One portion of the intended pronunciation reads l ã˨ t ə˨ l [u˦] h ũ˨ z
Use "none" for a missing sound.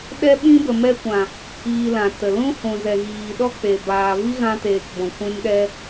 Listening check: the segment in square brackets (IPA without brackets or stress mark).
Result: ũ˦